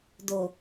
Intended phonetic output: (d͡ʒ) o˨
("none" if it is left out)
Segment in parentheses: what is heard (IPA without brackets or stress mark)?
d